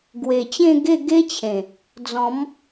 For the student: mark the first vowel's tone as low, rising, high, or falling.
low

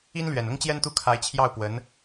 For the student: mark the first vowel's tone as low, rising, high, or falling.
high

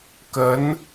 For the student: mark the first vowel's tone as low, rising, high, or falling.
rising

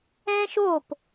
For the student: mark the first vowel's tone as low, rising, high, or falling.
high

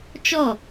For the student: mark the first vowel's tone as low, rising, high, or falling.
falling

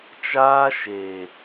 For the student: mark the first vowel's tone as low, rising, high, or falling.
high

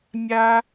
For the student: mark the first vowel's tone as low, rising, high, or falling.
high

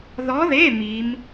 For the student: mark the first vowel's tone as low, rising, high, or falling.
rising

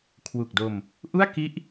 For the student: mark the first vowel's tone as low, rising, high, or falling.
low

